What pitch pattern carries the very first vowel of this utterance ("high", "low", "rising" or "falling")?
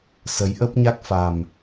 rising